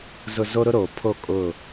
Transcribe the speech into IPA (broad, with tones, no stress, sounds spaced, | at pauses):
z ʊ˨ z o˦ ɾ ʊ˦ ɾ oː˨ pʰ o˦˨ kʼ ʊ˦˨